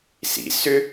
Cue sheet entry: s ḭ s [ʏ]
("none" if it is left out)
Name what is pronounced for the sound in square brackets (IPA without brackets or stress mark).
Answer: ʏ